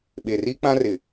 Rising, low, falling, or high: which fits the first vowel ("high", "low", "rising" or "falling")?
low